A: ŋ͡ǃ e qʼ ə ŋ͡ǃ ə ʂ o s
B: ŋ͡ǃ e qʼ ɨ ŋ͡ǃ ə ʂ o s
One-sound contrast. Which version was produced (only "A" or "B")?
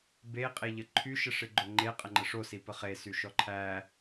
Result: A